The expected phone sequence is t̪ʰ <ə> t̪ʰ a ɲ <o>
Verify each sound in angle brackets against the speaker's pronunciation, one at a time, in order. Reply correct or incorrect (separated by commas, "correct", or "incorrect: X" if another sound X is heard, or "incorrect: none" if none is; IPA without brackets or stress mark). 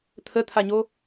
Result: correct, correct